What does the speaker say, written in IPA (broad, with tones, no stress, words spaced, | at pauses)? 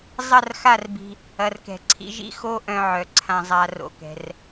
zˤɐ˦˨rxa˦˨rbi̤˧ | ɐ˨rkɛ̤˨ ǀʰḭ˧ʒḭ˦xo˦ ʔœ̃˧ʕœ˨ ǀʰã˨zˤa˨ ro̰˧kɛ̤˧r